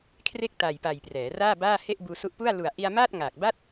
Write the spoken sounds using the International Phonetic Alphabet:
kʰ r e˥˩ k̚ t a˨˩ j p a˨˩ j p r ɛː˩˦ r aː˥˩ b aː˥˩ h e˥˩ ʔ b uː˧ s u˦˥ ʔ p u˥˩ a̯ l u˨˩ a̯ ʔ i˧ a̯ m aː˥˩ t̚ ŋ aː˨˩ k̚ b a˥˩ t̚

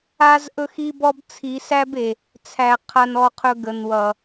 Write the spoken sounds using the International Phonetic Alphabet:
a˦ z ʔ ɵ˦ x i˦ b ɔ˦ b t͡sʰ i˨˦ s æ˦ b e˨ | t͡sʰ æ˨ qʰ a˦ n ɔ˦ qʰ ɵ˦ ɡ ə˨ n w ʌ˨

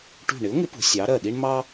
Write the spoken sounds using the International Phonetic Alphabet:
ʈ ṳ˧˩ ɳ ɪ˨˥ ʊ̯ ŋ ɪ˨˥ p ṳ˩˧ sʲ ɑ˨˥ ɾ ɜ˧˩ ɗ i˥ ɳ m ɑ˥

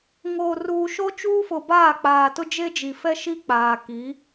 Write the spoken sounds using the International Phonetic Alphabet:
ŋ oː˨ r uː˨ ʃ o˦ t͡ʃ uː˦ f ʊ˨ b aː˦˨ k͡p aː˨ t ʊ˦ d͡ʒ e˦ d͡ʒ i˨ f ɛ˦ ʃ i˦ k͡p aː˨ k i˨˦

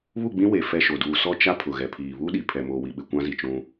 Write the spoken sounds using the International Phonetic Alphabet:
β u˦˨ ɡ͡b ĩ˦ w e˨ f ɛ˦ ʃ o˨ d uː˨ s ɔ˦ t͡ʃ a˦ pʰ ʊ˨ ɣ ɛ˨ pʰ iː˨ β u˦ ɗ i˨ pʰ ɛ˨ m oː˨ w i˨ ɓ ɪ˨ kʷ ã˦ z i˨ t͡ʃ ũ˦

